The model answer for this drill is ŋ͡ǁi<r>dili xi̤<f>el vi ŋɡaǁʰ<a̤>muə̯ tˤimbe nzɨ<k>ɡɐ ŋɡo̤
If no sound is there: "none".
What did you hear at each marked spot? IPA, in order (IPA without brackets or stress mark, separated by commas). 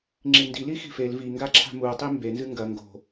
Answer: n, f, a̤, ŋ